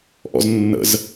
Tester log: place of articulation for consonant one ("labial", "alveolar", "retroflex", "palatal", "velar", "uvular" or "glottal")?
glottal